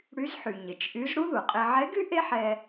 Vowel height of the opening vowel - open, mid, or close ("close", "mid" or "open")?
close